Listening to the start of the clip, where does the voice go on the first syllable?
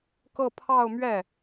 falling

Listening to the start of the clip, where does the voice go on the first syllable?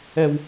low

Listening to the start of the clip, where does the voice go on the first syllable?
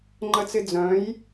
high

